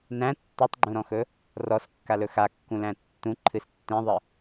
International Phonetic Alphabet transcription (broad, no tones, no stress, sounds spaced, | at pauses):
n æ̃ tː ɔ tˤ ɡ͡ǃ ũ ɾ ɔ̃ x ɵ | r ɔ s kː a l ɵ x a kː ũ l æ̃ tː ũ ǃʰ ɨ s tː ẽ ðˤ ɨ